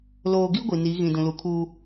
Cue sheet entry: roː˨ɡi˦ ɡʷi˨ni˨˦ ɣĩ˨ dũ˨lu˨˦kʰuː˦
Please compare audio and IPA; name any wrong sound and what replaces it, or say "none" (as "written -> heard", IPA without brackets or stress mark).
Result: r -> l